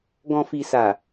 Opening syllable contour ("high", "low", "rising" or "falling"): low